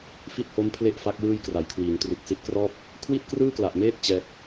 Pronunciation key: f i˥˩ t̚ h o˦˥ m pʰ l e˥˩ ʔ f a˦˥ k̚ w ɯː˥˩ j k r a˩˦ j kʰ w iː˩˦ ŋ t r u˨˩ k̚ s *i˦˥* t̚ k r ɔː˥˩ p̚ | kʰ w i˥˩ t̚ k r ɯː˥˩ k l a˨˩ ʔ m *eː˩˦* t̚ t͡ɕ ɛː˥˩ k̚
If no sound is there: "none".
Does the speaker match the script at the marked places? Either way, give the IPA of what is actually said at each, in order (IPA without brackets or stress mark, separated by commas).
i˦˥, eː˥˩